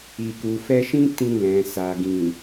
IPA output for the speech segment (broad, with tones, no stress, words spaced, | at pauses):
i˨ku˨fɛ˧ʃĩ˦ tĩ˧ lɛ̃˨sa˨ ɡĩ˨